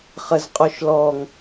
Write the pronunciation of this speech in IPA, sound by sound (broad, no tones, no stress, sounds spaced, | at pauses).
χ ə z qʼ ɔ ʃ l ɔ ŋ